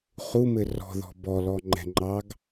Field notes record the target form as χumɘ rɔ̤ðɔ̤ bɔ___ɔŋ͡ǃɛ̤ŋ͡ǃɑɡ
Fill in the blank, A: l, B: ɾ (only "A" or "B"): A